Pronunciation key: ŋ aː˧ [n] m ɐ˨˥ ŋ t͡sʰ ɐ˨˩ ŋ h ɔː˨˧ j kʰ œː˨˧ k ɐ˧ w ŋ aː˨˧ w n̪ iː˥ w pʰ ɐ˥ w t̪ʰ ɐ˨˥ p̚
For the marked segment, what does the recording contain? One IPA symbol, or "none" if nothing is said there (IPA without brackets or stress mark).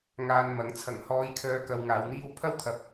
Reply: n